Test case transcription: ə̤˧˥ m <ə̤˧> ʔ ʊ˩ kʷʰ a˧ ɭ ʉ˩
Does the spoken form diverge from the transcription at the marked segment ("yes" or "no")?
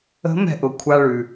yes